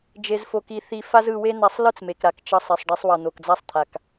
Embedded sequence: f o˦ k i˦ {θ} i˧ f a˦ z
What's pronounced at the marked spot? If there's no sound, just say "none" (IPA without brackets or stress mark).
θ